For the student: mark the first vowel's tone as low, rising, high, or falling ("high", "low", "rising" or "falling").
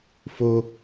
high